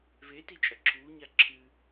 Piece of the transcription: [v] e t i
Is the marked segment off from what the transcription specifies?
no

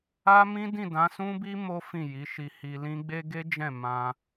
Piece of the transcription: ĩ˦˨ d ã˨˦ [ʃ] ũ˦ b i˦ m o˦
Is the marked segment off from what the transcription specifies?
yes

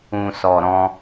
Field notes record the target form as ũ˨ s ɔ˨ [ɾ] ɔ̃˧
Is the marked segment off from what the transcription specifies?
no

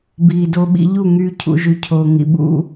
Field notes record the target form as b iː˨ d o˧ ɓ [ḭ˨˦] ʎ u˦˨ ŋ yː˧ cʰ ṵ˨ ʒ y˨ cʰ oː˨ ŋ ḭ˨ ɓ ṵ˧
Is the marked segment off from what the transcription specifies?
yes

